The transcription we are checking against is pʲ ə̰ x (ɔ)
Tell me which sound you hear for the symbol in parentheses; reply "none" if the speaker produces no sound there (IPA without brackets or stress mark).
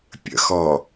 ɔ